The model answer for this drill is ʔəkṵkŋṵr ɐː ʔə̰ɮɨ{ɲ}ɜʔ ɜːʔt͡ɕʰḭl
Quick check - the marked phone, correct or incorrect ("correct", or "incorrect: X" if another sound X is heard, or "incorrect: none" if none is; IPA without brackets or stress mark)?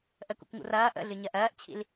correct